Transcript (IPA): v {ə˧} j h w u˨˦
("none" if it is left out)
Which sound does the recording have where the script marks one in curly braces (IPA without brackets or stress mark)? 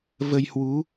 ə˧